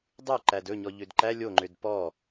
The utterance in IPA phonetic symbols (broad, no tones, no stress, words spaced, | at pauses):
dˤy ǃædɵɲɔ ʎødǃæ lʲoŋ͡ǃød pɔ